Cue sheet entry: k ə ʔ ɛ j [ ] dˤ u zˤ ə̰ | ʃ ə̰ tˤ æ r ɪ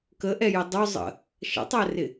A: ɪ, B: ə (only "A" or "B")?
A